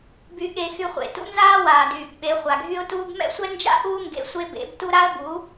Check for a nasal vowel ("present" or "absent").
absent